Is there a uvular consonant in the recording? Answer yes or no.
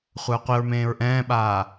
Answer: yes